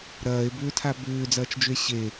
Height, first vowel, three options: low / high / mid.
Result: low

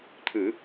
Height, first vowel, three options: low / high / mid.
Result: high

